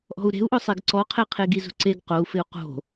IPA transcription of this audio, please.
ʔ ɔ̤ u̯ ɾ e̤ u̯ ʔ ʊ sˤ e ɡ ǀ ɔ qʰ ɛ qʰ e ɡ i z ṳ ǀ e ɡ q o u̯ f ɪ u̯ q o̤

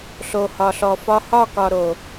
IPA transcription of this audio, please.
ɬ o˨ h ɒ˨ ɬ ɔ˨ f ɒ˦ h ɒ˦˨ k ɒ˨ ɾ o˨

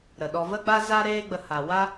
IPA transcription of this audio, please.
ɾ ə˨ ɗ ɔ˧ v ə˦ ɡ͡b a˦ z a˦ ɾ eː˦ ɡ͡b ə˧ h a˨ w a˦

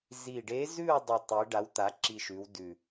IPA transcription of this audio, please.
z i˨˩ ɖ e˧˥ z ʉ˦˨ u̯ dˤ i˨˩ tˤ i˩˧ ɖ a˩˥ w t̪ a˩˥ ǁ i˨˩ ʃ ʉ˩˧ w d ʉ˨˩

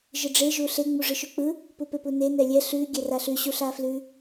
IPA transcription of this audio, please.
ʒ ɯ ɖ͡ʐ e ʒ u ɬ e ŋ͡m u ʐ ɯ ʃ ʉ k͡p ɯ | p u p e p u n e n ɛ lʲ ɛ ɬ ʉ ɡʲ ɛ r a ɬ ʉ ɕ u ɬ a f l ʉ

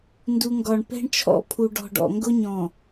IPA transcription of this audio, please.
n d u˨ ŋ ɡ ɒ˨ ɳ p ɛ̤˦ ɳ t͡ʃʰ ɔ̰˦ pʰ u˨ ɖ ɔ̤˨ ɖ ɔ̰˨ ŋ ɡ ʊ˦ ɲ ɔ̃˨

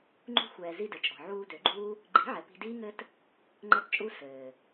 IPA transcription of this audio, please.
ŋ͡ǃ ṳ˦ xʷ ɛː˨ z i˦ d ɘ˨ t͡ʃʼ ɔ̤˨ ʕ uː˧ d ø˨˦ ɡ͡ǃ uː˦ | ɡ͡ǃ i̤˨˦ ʕ ɛ˨ p i̤˧ d iː˦ ŋ ɘ˦ t | ŋ͡ǃ ɛ˦ t t͡ʃʼ u˦ s ɘː˨

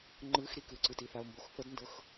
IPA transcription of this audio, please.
ŋ͡ǃ ɯ x ɾ i k ɯ ǀ ɯ t i θ a o̯ m b o x θ ɤ d n d ɤ x

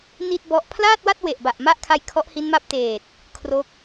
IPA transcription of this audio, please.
n i˥˩ t̚ b ɔ˦˥ ʔ pʰ l aː˥˩ t̚ w a˥˩ t̚ w e˨˩ ʔ b a˨˩ ʔ m a˥˩ ʔ kʰ a˧ j kʰ ɔ˦˥ ʔ h i˦˥ n m a˦˥ p̚ t eː˨˩ t̚ | kʰ r o˦˥ k̚

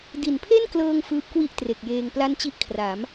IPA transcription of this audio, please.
d i˨˩ n pʰ e˥˩ n k l ɤː˧ ŋ f ɯː˦˥ p̚ k w i˥˩ ʔ t r e˨˩ k̚ j eː˧ ŋ p l a˥˩ n t͡ɕ i˥˩ ʔ kʰ r a˩˦ m

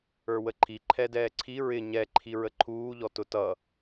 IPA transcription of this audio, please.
ə˞ w ə ǃʰ i ǃʰ ɛ d ɛː ǀʰ i ɹ ɪ ɲ ɛ ǃʰ i ɹ ə ǃʰ uː ʎ ɔ t ʊ t ʌ

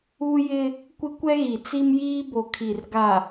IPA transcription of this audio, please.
u˦ j ɪ˦ | kʷ ɪ˦ kʷ ɛ˦ ɣ i˨ t͡s i˦ m j iː˦ b o˨ kʰ i˨ r ɡ a˨

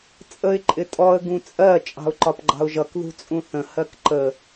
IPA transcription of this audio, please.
t͡sʼ ə ɪ̯ ǃʼ ɪ tʼ ɔ ə̯ ɡ ũ t͡sʼ ɜ t͡ʃʼ ɑ̤ ʊ̯ ǃ ɒ p ɡ͡ǃ ɑ̤ ʊ̯ ʒ ʌ k ð ṳ t͡sʼ ũ θ ə̃ h ɜ k ǃ ə

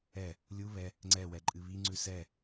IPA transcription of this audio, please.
ɛ | lʲ u β ɛ | ŋ͡ǀ ɛ w ɛ ǃʼ ɨ β i ŋ͡ǀ ʉ s ɛ

